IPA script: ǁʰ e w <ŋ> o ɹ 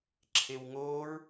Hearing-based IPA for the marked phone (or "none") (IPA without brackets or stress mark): ŋ